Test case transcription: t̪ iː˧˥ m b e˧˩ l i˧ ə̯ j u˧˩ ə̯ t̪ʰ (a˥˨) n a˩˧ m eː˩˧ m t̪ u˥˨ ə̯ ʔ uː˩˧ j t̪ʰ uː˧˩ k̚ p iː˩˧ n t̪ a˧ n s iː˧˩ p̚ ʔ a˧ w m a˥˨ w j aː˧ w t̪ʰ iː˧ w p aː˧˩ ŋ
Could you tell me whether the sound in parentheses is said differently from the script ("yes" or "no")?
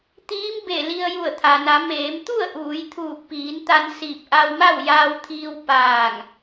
yes